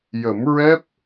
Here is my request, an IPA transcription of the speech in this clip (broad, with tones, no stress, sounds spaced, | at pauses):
j ə˨˩˦ m ɹ ɛ˦˥ p̚